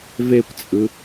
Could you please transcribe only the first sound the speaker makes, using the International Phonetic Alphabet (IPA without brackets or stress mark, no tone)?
v